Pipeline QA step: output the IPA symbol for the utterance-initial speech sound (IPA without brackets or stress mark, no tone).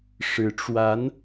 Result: ʂ